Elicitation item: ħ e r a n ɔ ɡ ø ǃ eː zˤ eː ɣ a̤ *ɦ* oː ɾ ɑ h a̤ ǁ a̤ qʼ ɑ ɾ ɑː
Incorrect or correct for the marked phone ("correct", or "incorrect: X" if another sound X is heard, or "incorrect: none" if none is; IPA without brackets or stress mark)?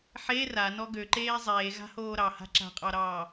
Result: incorrect: h